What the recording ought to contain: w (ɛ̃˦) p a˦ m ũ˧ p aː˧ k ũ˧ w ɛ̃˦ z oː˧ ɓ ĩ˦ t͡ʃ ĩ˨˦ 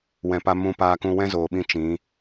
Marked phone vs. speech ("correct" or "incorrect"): incorrect